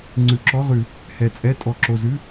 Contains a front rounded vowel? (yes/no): no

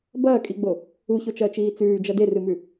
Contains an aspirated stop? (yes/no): no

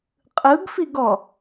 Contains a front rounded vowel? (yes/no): no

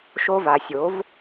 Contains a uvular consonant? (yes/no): no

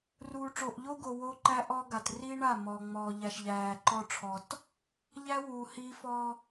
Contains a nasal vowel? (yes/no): no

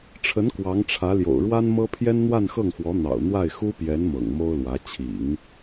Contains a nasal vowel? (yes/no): no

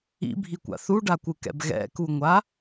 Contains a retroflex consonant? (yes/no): yes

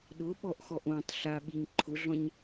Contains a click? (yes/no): yes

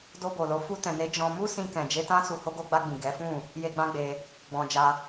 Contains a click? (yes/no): no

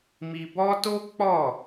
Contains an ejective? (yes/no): no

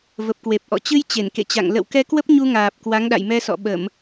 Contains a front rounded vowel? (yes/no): no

